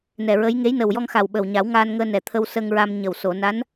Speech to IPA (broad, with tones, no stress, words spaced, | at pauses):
nɛ˨˩ɹə˧˥j ŋe˧˥jnə˨˩wjɔ˧ŋxa˨˩w ɓə˨˩wɲa˨˩˦w ŋaː˧nŋəː˧ nɛ˨˩ t̪ʰə˧wsə˧ŋɹa˧mɲə˨˩w so˨˩˨na˧˥n